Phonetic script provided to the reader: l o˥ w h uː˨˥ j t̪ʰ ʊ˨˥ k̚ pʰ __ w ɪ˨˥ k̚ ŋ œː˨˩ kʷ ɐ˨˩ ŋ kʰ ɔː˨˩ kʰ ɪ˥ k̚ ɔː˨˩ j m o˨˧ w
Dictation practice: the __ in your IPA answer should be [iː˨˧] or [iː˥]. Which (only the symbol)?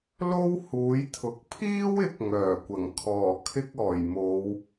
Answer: iː˥